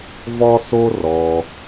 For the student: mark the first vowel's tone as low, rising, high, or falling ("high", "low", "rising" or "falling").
high